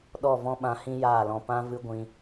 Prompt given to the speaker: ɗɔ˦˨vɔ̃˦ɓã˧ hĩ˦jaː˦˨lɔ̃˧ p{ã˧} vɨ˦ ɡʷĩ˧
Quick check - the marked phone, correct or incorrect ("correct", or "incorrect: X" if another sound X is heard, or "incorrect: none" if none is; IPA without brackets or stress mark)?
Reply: incorrect: ã˦